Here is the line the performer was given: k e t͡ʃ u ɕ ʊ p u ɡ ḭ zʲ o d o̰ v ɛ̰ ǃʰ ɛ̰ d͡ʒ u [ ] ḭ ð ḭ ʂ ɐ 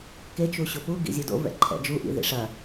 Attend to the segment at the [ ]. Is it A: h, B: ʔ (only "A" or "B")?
B